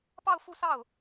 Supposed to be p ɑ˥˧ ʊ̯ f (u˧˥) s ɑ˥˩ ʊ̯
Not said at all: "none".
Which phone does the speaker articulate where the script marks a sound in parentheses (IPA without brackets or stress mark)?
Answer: u˥˧